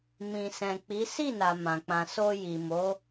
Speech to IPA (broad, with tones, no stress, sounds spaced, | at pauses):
m ĩ˨ s ɛ̃˨ k͡p i˨˦ s i˦˨ n a˨ m ã˨ k͡p ã˧ s o˧ j i˨ m o˨˦